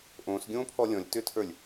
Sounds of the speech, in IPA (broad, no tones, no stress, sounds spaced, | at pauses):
ʔ õː s ɡʲ õː pʰ ɔ lʲ ɔ̃ lʲ t ʏ tʰ ə˞ lʲ